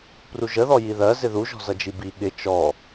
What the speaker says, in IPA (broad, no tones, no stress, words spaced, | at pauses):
pruʒəðɔ jiðɜ zɪðuʒɔ̤ zʌd͡ʒibi ɠɪ t͡ʃɔ